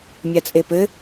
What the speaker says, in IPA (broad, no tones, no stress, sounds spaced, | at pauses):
mʲ a t͡sʼ e p ɘ